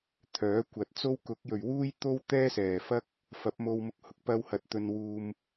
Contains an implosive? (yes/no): no